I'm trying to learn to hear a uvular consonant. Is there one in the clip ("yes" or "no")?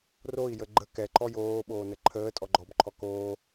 no